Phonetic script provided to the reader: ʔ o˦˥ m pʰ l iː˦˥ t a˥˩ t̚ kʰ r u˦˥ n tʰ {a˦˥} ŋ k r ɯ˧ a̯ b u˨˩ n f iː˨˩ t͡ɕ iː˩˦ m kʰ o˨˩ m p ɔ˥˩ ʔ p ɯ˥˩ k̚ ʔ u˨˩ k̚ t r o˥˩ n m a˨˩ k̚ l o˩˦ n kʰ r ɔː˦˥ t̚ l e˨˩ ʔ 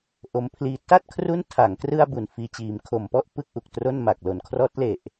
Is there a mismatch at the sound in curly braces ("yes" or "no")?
yes